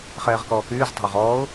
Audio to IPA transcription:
χ ɛː ʁ k ɔː k yː z tˤ a̤ ʊ̯ ʁ ɔː ʊ̯

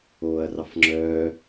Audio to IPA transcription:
oː ɐ̯ r ɑ f ŋ͡ǁ œː

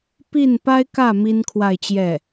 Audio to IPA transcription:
p i˥˩ n p a˥ ɪ̯ k ä˥˩ m i˥ n kʰ w a˥˧ ɪ̯ t͡ɕ j ɛ˥˩

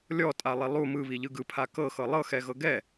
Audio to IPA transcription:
lʲ ɔ tʼ a lˠ i lˠ u m ɯ β i ʎ ɯ ɡ ɯ pʰ a k ɤ x ɤ lˠ ɤ x ɛ ɣ ɤ ɡ ɛ

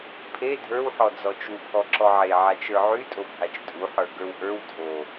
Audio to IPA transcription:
pʰ e dʱ ə˞ w ħ ɔ d͡z ɔ t͡ʃ u pʰ ɔ ǁ ɔ ʕ e ʕ a t͡ʃ ə˞ ʕ y tʼ o bʱ a t͡ʃ tʼ u ħ ə˞ ɡ ə˞ w ʔ ə˞ w dʱ o

